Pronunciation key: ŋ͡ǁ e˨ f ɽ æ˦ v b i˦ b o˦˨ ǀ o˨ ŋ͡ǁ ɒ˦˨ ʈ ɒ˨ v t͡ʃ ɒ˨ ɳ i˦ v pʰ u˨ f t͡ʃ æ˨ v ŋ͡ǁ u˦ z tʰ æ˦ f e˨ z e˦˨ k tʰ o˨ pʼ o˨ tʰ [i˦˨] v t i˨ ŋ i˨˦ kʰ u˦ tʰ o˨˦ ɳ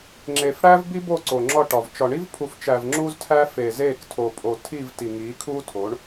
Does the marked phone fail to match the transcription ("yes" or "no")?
no